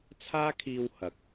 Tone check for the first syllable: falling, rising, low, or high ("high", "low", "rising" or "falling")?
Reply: high